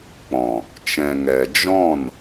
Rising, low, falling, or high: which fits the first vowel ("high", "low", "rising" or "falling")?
low